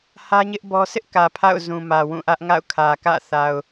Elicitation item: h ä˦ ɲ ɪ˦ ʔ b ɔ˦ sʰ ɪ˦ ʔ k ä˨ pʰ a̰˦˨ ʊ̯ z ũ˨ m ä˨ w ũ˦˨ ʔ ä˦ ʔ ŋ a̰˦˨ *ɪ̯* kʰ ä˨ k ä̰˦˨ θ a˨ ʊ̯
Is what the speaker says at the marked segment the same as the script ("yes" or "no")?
no